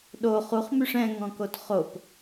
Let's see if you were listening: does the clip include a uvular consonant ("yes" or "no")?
yes